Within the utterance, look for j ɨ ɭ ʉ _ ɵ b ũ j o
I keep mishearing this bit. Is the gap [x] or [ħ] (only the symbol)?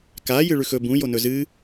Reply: x